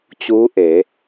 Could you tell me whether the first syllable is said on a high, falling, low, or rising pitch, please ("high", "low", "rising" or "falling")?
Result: rising